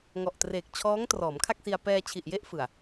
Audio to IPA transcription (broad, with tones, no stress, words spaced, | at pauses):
ŋɔ˨˩ʔtreː˨˩k̚ t͡ɕʰɔː˦˥ŋ trɔː˩˦mkʰa˥˩k̚si˧a̯ pɛː˧t͡ɕʰi˨˩ʔje˥˩ʔ fɯ˨˩a̯